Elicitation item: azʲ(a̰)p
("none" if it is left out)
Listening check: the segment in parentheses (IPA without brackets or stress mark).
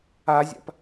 a̰